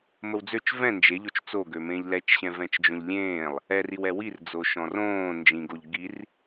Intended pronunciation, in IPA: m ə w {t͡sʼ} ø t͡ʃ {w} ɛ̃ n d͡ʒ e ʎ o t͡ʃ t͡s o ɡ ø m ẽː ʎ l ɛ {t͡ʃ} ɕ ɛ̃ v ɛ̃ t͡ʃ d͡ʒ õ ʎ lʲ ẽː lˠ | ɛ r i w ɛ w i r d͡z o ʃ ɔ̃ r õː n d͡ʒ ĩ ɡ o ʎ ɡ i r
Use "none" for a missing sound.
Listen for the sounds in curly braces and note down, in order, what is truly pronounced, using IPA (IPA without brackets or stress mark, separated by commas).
d͡z, v, t͡ʃ